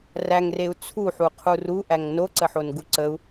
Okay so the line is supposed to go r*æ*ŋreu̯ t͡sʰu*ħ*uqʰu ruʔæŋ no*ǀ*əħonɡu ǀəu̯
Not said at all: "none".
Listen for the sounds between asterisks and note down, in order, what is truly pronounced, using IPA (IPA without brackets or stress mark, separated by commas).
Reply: æ, ħ, ǀ